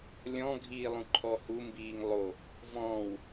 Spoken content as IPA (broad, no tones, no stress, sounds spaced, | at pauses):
lʲ ɔ̃ ɡʱ iː lˠ ũ ǃʰ ɔ h u m b iː ŋ lˠ o | v ɔ̃ː w